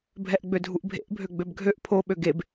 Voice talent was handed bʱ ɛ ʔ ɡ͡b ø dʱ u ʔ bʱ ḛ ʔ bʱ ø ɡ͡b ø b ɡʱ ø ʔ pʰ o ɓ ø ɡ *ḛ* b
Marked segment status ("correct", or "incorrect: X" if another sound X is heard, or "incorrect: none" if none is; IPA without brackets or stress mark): incorrect: e